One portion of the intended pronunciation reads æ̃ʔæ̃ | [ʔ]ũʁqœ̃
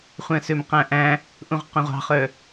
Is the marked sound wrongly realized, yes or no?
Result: no